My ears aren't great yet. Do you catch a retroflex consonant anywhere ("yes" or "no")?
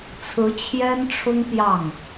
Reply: yes